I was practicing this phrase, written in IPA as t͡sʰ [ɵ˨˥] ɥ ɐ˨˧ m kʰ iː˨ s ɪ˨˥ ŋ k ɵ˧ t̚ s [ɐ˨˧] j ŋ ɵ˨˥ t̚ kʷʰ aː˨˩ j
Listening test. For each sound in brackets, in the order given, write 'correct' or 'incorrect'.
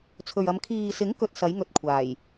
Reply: incorrect, incorrect

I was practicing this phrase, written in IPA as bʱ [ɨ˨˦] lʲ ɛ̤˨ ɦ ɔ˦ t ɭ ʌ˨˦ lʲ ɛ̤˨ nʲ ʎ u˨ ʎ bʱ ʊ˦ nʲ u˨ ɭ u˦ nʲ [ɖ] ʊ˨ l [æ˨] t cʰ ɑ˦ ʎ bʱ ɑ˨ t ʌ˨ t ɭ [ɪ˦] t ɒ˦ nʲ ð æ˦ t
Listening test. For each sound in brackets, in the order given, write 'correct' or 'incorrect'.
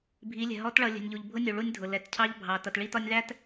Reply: incorrect, incorrect, incorrect, incorrect

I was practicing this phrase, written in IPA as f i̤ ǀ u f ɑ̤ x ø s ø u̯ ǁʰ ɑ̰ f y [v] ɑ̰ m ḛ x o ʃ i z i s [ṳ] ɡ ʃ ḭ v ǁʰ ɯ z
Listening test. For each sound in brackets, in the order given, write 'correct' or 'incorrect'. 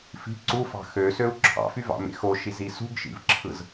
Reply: correct, correct

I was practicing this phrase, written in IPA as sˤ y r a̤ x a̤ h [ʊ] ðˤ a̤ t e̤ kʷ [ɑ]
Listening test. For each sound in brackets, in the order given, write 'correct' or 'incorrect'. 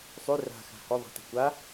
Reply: incorrect, incorrect

